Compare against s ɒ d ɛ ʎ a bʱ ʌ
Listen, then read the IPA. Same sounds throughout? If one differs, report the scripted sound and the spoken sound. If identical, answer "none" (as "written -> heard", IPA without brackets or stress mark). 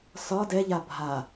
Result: ʌ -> a